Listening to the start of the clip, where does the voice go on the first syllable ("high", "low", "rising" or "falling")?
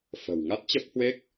low